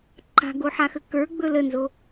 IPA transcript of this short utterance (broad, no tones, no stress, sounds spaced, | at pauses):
ǃʰ a̤ ɡ o ħ a x ə k ə˞ ɡ͡b ɵ l ə n z o